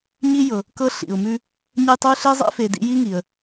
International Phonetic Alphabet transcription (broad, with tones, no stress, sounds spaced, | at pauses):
ɲ i˥ j ɤ˩ | k ɤ˦ ɬ ḭ˩ ʊ̯ m ʉ˦ | ɲ ə˦ j tˤ ʉ˦ ɬ e˥ zˤ ḛ˥ f e˨ d ḭ˦ j i˥ ŋ i˩ ə̯